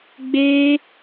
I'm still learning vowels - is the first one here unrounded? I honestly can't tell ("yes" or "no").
yes